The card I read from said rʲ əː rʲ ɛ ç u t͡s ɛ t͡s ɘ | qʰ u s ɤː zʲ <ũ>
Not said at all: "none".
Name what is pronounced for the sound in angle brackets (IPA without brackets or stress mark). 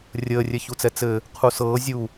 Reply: u